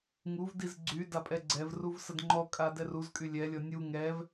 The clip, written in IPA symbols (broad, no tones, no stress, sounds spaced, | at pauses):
ŋ u v d i z ɡ͡ǀ y d a pʼ ɛ ɡ͡ǀ ɛ v r u v s ə d ŋ͡ǃ ɔ kʼ a d ɛ r u z kʼ y lʲ ɛ lʲ ɔ nʲ u ŋ ɛ v